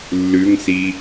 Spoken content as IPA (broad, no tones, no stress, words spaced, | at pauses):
lːʉŋsi